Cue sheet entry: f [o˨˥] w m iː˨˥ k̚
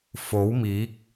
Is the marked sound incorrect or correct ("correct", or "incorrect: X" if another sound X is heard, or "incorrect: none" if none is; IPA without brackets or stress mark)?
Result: correct